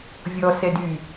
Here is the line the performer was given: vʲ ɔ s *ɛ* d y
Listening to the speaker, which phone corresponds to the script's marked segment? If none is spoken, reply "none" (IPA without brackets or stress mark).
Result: ɛ